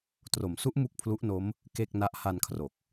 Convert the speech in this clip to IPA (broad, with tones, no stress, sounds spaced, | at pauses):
t r o˩˦ m s u˦˥ ʔ m u˥˩ k̚ pʰ l u˦˥ ʔ n o˦˥ m | k e˥˩ k̚ n a˦˥ ʔ h a˧ n kʰ r o˨˩ k̚